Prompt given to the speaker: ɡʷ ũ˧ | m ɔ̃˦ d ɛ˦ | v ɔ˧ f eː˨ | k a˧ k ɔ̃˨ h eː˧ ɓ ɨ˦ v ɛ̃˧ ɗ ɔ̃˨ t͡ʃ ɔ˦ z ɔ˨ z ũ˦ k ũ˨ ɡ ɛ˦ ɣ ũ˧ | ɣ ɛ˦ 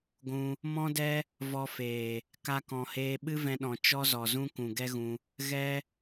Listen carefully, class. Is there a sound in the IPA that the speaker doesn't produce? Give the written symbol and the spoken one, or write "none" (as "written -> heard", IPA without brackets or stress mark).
none